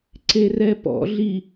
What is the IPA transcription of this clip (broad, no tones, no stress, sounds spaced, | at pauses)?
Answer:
ǀ e r ɛ p ɔ̰ ɮ i